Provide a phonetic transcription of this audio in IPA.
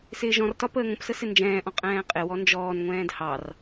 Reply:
sɪːʒɔ̃rtɒ pəːŋə̃psə sɪnd͡ʒɛ̃ːʔɔ̃ qʼɛ̃ːqʼɪwɔ nd͡ʒɔːnŋʷɛ̃ːd hɑr

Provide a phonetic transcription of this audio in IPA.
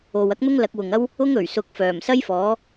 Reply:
o˨wɐ˥k̚n̪ʊ˥ŋ lɐ˨˥k̚wʊ˨ŋɐ˥w | ʊ˥ŋɵ˨˩ɥsʊ˨˥k̚ fœː˨˩m sɐ˥jfɔː˨˥

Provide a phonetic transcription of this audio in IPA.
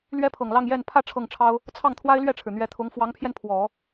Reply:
lɥɛ˥pʰɤ˨˩ŋlɑ˥˧ŋ jɛ˥˧n pʰä˥˧ ʈ͡ʂʰɤ˥˩ŋʈ͡ʂʰɑ˥ʊ̯ | t͡sʰɑ˥˩ŋt̪ʰwa˥ɪ̯lɥɛ˥˩ʈ͡ʂʰɻ̩˩ n̪ɥɛ˧˥t̪ʰʊ˧˥ŋ fwɑ˧˥ŋpʰjɛ˧n pʰwɔ˨˩˦

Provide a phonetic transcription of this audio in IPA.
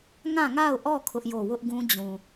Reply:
ŋã˦˨ŋa˦˨ʊ̯ʔɔ˦˨ kʰʊ˦ʔjo˦˨ wʊ˦ʔɡũ˦d͡ʑũ˨

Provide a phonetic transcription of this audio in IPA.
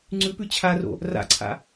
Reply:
ŋ͡ǀʉpʉ t͡ɕʰaro̰ | ra̰ǀʰa̰

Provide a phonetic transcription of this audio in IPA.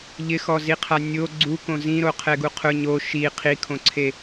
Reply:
ʎɪxɔziqʰa nʲo ɡ͡ǀukõ zĩɾoqʰɛɡu qʰʊ ɲo ʃi qʰikʰõǀʰe

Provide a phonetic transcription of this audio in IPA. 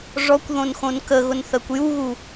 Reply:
ʐɔkʷðõnxõn kəɣʊnθɜkʷ juɣu

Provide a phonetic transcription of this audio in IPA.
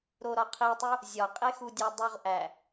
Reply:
ɾoɾɒqʰitˤu | zʲɒqʼexudʲæ dˤoʁʔæ

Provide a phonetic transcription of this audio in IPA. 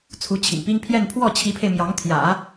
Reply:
t͡sʰu˧˥t͡ɕʰḭ˨˩ŋpi˥ŋ pʰjɛ˥˧n pʰwɔ˥˩t͡ɕʰi˧˥pʰe˧ɪ̯ mjɑ˧˥ŋt̪ʰjä̰˨˩˦

